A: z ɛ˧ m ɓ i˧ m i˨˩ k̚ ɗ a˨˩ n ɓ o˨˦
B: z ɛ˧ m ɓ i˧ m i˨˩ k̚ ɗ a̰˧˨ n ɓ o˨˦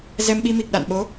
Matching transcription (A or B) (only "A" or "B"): B